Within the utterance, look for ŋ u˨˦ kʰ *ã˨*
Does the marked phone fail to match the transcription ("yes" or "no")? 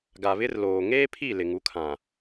no